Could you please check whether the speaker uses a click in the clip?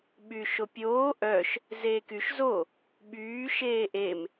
no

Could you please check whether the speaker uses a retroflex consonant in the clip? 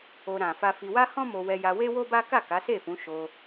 no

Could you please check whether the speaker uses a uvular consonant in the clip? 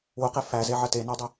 yes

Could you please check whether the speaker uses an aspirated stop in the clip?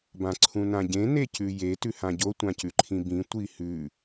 yes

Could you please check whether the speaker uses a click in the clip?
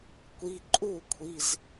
yes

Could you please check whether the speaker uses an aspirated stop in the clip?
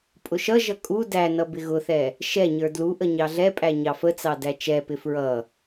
no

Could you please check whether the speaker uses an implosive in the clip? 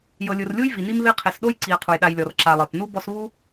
yes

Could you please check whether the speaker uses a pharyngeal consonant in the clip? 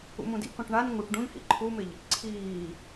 no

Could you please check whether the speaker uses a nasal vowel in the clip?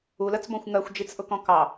yes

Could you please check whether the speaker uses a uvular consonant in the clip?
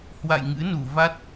no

